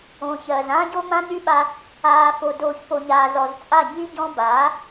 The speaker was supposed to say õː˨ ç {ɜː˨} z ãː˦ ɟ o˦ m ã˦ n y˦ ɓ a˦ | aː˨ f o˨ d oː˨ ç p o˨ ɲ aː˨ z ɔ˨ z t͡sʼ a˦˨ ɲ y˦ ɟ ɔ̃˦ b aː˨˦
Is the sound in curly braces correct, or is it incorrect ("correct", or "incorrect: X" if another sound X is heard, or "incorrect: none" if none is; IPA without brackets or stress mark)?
correct